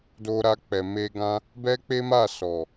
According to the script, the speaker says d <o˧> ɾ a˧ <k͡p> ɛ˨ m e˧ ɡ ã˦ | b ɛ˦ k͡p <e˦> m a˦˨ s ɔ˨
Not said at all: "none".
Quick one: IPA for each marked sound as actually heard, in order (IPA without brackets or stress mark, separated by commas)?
o˧, k͡p, e˦